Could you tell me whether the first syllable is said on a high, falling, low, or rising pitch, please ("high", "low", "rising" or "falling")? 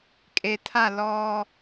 low